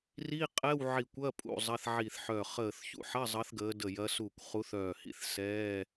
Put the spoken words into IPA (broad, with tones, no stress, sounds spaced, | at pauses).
r i˧˥˧ qʼ ɛ˧˥˧ w ʕ i˧˩ kʷ ɐ˧˥˧ pʼ ṵ˧˩ zˤ ɐ˧˥˧ θ ʕ i˧˩ θ ħ œ˧˩ χ əː˧˩ θ ç ṵ˧˥˧ ħ ɐ˧˥˧ zˤ ʌ˨˦ θ ɡ əː˨˦ d ə˧˩ j ɐ˨˦ s u˧˩ kʷ χ u˨˦ θ œː˧˩ h ḭ˧˥˧ θ s ɛː˧˥˧